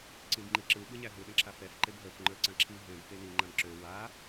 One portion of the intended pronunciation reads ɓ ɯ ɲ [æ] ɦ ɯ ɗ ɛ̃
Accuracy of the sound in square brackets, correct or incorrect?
correct